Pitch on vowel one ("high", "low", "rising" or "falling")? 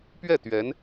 falling